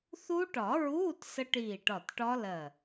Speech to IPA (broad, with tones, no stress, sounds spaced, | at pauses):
θ u˦˥ ʈ ɒ˨˩˦ ɹ uː˧˥˧ t s ə˦˥ ʈ iː˧˩ ʈ ɒ˧˩ t ʈ ɒ˦˥ l ɜ˧˩